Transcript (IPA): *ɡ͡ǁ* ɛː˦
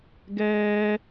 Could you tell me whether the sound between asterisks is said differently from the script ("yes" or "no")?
yes